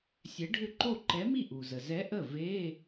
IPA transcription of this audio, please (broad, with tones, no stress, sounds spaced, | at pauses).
sʲ ɛ˨˥ ɖʱ ʏ˥˩ ǃ o˥˩ ǃ ɛ˨˥ m i˥˩ ʔ u˩ z ə˩ z ɛ˨˥ ʔ ə˥˩ v e˧˥˧